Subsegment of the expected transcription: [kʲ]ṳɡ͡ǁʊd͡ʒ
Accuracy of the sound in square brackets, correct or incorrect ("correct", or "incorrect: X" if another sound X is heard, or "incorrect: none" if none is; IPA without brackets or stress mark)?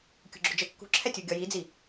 correct